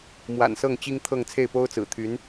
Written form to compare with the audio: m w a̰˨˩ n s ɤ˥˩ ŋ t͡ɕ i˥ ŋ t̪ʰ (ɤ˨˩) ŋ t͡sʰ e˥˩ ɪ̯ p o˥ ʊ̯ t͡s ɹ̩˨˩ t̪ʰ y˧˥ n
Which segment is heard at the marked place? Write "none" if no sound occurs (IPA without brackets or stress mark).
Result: ɤ˥˧